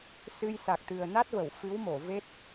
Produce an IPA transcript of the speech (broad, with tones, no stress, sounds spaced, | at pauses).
s ɨ˧ j s a˨˩ k̚ t̪ ɨ˨˩ ə̯ n a˦˥ t̚ v ə˧˩ w f ɨ˨˦ w m o˧˩ v e˦˥ t̚